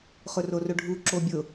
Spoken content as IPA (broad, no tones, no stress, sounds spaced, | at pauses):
χ ʊ r o r ʊ ɖʱ u ǁ o bʲ ʊ